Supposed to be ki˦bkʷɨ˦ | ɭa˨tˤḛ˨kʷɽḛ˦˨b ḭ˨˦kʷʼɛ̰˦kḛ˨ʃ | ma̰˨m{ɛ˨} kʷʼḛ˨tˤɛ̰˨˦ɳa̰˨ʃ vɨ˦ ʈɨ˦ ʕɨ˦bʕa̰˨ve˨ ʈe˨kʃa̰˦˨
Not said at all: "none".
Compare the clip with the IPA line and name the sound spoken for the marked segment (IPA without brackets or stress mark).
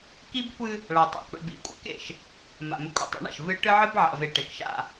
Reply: ɨ˨